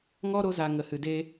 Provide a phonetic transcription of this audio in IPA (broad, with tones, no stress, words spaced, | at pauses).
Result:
ŋɔ˦ɾo˧za˨ ŋə˨hɨ˨de˧